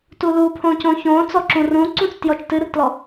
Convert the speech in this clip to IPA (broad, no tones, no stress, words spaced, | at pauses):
tulupʰõcõ çõ t͡sɔǁũrũǀũt͡s tjɔt͡ʃtɨrtlɔ